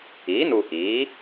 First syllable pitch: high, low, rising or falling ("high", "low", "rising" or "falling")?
rising